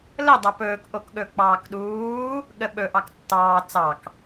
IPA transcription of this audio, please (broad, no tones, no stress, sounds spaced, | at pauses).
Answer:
l ə dˤ a p ɵː k ʔ o k ɠ ɵ k͡p ɑː k ɗ uː | ɠ ə ɓ ɵ ʔ ɑ k tː ɑː t͡s ɑ k